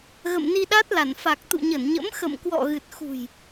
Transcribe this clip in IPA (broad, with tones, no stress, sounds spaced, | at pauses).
ɣ ə̰˧˨ m n i˧ ɗ a˦˥ t̚ l a˧˩ n f a˨˩ k̚ t̪ ṵ˧˨ ɲ ə˧˩ n ɲ ə̰˧˥ m x ə̰˧˨ m k w ɔ̰˧˨ ɣ ɨ˨˩ t̚ x ṳ˨˩ j